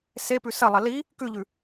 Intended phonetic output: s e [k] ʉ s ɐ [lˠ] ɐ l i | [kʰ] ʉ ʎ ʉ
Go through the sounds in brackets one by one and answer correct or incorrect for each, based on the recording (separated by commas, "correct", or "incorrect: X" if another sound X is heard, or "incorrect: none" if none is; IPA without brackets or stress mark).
incorrect: p, correct, incorrect: k